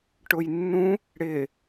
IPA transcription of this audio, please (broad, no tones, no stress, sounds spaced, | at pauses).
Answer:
ʈ ʊ j nː ũ | ɽ ɪ